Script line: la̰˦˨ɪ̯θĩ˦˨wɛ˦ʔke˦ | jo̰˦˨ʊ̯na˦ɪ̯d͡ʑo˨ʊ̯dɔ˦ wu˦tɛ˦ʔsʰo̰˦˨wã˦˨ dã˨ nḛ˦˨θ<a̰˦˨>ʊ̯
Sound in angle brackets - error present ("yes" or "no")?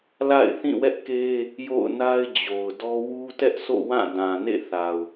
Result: yes